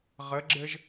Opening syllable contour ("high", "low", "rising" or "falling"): rising